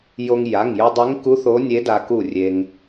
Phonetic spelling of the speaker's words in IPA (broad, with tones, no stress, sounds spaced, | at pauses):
j o˧ ŋ j a˩˧˩ ŋ j ɵ˧ dˤ e˧˥ ŋ k u˧˥ θ o˧˥ nʲ e˧˥ d a˧ k u˧˩ rʲ e˧ ŋ